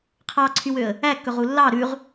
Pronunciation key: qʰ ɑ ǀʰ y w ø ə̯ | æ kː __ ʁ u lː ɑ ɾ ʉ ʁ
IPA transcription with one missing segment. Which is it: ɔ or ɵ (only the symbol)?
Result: ɵ